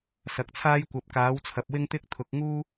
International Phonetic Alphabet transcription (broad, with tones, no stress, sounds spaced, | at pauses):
s ɐ˨ k̚ t͡sʰ aː˥ j kʷ ɐ˨ p̚ k aː˨˥ w t͡sʰ ɐ˨ p̚ w ɪ˥ ŋ t̪ ɪ˥ k̚ t̪ʰ ʊ˨˥ k̚ ŋ uː˥